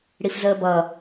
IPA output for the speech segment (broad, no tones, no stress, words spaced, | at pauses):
ɽifzəːbʌ